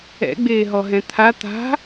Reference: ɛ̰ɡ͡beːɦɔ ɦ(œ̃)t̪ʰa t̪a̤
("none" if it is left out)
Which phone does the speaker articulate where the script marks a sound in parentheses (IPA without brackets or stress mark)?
ɛ̃